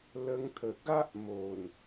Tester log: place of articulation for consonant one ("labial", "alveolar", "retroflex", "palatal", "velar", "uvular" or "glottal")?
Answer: alveolar